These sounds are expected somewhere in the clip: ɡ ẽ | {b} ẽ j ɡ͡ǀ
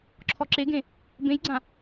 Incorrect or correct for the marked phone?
correct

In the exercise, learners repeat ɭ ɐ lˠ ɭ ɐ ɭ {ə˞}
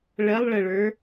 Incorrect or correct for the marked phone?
correct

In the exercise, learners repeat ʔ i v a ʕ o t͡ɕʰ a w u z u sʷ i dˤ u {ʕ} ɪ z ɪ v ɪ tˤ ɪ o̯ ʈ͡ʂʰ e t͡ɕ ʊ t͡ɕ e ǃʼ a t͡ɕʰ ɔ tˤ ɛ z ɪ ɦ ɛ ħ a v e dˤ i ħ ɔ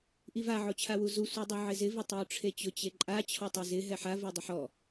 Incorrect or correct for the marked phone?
correct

